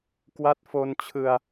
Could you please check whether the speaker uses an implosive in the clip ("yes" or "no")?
no